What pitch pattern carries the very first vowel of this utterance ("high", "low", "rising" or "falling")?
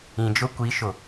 low